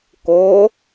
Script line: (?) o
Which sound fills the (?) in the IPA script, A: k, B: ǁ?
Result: A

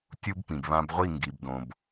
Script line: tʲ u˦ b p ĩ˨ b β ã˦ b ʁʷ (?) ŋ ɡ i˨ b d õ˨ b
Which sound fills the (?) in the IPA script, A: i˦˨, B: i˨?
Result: A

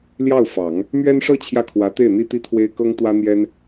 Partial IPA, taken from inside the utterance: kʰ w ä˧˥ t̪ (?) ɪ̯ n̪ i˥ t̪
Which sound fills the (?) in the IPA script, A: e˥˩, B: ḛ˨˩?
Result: A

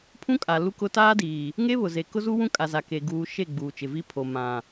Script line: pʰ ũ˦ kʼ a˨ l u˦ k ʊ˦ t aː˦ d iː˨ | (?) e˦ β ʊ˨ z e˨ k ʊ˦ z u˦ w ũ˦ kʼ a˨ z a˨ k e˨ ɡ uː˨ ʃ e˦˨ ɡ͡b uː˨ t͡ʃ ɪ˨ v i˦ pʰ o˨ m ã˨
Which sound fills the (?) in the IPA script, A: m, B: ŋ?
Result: B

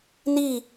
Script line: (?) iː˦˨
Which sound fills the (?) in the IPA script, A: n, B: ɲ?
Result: A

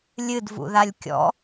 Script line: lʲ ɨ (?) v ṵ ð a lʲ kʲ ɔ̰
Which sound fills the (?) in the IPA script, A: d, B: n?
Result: A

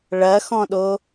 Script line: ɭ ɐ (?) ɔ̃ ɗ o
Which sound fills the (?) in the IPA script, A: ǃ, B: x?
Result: B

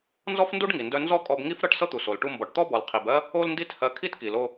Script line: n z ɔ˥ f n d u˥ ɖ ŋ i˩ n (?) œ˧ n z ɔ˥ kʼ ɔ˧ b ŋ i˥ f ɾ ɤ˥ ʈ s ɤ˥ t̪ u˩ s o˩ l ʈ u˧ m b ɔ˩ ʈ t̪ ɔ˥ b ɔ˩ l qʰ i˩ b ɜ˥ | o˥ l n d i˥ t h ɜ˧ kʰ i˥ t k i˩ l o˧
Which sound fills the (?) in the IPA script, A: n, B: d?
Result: B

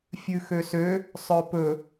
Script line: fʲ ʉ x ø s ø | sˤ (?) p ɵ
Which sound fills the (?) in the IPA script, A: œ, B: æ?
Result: A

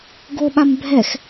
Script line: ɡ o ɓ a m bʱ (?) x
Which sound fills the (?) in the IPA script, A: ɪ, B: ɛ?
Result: B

